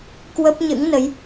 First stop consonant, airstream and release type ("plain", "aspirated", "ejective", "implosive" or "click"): plain